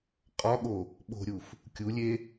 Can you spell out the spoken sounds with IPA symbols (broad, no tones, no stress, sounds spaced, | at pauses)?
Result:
qʼ ɒ ɠ o | ɓ o̤ ɾʲ u f | kʲ u lʲ e